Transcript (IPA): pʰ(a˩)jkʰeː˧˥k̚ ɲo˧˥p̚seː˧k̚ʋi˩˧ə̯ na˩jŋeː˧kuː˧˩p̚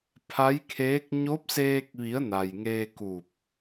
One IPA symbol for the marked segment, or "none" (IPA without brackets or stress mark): a˧˥